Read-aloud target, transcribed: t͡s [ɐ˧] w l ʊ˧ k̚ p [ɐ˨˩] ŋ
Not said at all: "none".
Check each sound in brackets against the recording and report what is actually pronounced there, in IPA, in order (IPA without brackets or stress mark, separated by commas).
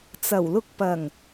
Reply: ɐ˨˩, ɐ˨˩